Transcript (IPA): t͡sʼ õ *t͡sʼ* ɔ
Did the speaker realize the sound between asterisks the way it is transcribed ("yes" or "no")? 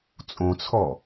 no